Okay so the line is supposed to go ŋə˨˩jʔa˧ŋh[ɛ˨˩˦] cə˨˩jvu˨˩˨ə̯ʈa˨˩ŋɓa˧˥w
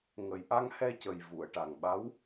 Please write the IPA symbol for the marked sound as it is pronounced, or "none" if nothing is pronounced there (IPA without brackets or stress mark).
ɛ˧